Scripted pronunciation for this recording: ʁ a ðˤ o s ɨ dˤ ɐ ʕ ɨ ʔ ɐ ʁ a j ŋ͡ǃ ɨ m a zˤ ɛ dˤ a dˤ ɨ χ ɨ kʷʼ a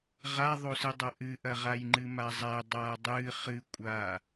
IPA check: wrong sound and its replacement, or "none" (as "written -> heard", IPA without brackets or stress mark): ʕ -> ʔ